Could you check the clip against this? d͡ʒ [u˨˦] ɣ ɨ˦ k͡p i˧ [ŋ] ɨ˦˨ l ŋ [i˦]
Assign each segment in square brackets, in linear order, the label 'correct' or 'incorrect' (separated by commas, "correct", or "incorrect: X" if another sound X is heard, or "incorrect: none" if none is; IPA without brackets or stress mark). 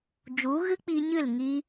correct, incorrect: ɲ, correct